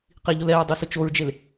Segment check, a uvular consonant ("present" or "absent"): present